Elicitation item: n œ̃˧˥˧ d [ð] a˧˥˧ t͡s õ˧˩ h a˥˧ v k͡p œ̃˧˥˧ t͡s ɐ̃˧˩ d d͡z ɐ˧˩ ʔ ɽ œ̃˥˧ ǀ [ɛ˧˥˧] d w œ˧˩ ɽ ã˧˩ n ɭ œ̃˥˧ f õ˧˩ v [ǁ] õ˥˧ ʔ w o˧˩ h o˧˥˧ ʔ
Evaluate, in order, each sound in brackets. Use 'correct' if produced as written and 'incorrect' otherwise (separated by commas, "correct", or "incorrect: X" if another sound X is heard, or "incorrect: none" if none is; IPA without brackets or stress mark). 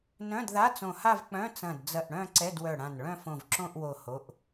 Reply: correct, correct, correct